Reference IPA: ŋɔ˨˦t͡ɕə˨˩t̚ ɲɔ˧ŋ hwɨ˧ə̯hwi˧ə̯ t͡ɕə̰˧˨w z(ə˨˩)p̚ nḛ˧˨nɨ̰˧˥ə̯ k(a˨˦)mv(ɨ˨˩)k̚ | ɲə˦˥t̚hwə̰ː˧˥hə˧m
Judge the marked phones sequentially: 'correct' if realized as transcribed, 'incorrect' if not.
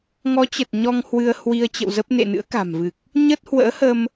incorrect: ə˦˥, incorrect: a̤˨˩, correct

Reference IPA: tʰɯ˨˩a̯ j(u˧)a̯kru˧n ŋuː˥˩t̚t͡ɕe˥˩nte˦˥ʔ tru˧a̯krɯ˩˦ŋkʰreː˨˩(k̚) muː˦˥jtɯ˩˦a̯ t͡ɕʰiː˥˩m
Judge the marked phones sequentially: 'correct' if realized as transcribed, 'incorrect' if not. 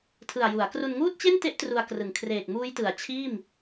incorrect: u˩˦, correct

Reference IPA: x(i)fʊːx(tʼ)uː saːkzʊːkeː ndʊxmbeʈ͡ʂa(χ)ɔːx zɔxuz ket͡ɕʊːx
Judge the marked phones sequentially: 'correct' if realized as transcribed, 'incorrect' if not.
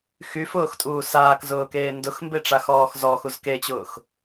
incorrect: y, correct, incorrect: x

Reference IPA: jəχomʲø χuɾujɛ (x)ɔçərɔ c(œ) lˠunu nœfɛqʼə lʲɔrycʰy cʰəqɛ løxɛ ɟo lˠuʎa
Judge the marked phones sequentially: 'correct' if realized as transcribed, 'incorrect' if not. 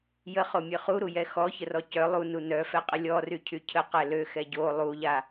correct, correct

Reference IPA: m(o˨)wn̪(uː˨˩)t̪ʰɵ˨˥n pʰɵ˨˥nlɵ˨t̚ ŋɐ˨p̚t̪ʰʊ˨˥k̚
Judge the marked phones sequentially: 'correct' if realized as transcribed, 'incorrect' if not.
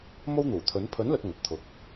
incorrect: o˥, correct

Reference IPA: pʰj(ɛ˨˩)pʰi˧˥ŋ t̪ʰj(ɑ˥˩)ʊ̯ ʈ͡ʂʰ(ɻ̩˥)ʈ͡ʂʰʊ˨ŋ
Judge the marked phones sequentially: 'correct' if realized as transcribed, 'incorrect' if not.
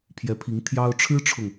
incorrect: ɛ˧˥, incorrect: ɑ˥, correct

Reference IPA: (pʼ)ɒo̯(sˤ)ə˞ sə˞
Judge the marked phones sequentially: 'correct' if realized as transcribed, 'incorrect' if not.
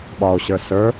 incorrect: ɓ, incorrect: ɕ

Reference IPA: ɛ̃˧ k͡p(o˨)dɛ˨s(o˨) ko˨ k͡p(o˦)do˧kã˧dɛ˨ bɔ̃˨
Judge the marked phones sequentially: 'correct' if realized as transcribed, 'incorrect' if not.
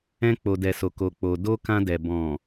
correct, correct, incorrect: o˨

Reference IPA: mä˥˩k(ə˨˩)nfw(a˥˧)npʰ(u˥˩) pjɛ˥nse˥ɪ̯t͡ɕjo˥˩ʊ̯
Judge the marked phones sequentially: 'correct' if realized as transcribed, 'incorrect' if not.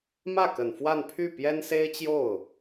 correct, correct, incorrect: y˥˩

